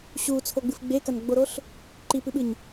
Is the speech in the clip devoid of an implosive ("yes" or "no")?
no